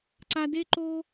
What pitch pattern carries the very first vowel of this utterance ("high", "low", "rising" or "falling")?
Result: low